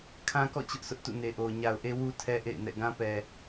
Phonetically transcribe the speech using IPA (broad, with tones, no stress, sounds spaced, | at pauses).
kʰ ã˦ k ɔ̰˦˨ t͡ɕ ʊ˦ ʔ s ʊ˦ ʔ t ṵ˦˨ n e˨ ʔ o˨ ʊ̯ ɲ a˨ ʊ̯ ʔ e˦ w u˦ tʰ ɛ˦ ʔ ḛ˦˨ ɪ̯ n ɛ̰˦˨ ɡ ã˦ p ɛ˨